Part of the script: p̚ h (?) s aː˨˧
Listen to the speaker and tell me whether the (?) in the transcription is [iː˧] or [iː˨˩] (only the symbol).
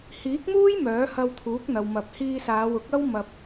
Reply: iː˧